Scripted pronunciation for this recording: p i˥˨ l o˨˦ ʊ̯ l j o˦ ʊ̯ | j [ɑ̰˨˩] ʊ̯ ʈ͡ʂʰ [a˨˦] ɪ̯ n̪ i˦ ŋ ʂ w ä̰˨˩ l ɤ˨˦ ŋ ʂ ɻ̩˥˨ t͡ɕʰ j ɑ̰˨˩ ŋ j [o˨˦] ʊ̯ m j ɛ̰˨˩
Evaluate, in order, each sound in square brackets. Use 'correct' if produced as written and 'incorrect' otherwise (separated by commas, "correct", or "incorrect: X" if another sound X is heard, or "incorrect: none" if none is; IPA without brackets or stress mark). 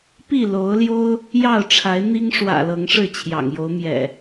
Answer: incorrect: ɑ˥˨, correct, correct